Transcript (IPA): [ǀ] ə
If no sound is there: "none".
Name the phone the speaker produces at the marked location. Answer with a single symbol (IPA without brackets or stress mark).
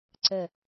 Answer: ǀ